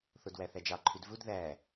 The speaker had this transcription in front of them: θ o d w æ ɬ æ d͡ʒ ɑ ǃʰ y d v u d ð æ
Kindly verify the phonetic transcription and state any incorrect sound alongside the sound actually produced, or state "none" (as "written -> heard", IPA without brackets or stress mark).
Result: ɬ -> θ